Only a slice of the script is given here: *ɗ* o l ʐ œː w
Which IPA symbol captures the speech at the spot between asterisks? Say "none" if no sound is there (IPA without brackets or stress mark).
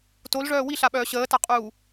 t